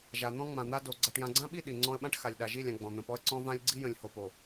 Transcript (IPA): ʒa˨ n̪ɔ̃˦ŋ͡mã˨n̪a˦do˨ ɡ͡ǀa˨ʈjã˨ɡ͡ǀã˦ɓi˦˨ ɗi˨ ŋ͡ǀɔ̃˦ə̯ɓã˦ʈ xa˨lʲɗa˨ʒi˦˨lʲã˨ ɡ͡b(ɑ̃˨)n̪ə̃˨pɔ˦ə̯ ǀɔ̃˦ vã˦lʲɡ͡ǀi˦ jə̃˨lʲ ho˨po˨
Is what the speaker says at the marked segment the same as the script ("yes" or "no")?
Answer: no